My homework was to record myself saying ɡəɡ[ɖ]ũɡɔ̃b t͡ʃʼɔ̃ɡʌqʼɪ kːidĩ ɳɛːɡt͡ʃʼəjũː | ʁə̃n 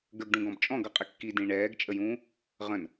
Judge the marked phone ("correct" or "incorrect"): correct